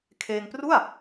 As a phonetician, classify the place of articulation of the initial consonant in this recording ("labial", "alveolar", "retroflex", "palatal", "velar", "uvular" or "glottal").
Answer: velar